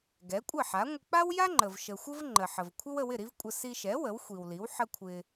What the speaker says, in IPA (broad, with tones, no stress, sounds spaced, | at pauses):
ɡ ɛ˩˥ kʷʼ ə˥˩ ħ a˩˥ ŋʷ ə˧ k͡p a˥ w j a˥ ŋ͡ǃ ə˩ v ʃ ə˩ xʷ ə˥ v ŋ͡ǃ ə˩ ħ ə˩ v kʷʰ ə˥ w ə˧ w ɪ˥˩ ɾ i˥ v kʷʼ ə˧ s i˧ ʃ ɛ˩˥ w ə˩˥ w xʷ i˩ w l i˩˥ w ħ ə˥ kʷʰ ɪ˧